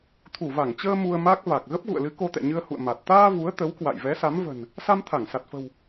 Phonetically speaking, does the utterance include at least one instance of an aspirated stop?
yes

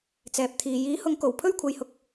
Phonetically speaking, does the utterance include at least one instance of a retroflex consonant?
no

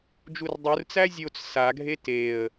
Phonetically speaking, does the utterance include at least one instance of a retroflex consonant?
no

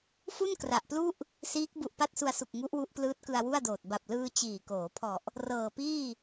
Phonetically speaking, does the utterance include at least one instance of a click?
no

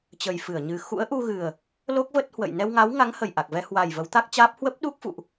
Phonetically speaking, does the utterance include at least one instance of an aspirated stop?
no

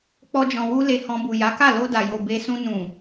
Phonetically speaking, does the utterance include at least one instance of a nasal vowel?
yes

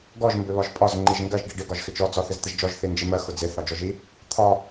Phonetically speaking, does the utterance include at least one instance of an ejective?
yes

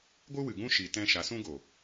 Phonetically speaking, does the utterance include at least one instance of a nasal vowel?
yes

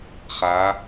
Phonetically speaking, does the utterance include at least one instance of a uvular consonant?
yes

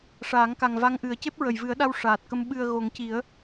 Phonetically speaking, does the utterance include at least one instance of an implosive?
yes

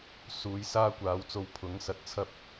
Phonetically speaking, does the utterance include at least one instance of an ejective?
no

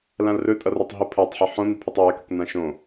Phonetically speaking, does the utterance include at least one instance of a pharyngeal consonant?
yes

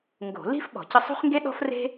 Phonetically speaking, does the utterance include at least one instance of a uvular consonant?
yes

